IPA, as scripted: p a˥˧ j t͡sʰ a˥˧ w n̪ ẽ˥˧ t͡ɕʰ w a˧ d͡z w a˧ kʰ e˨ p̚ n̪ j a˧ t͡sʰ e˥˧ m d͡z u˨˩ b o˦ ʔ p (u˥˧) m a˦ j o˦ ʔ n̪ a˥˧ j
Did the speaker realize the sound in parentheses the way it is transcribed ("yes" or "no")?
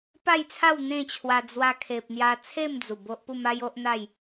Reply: yes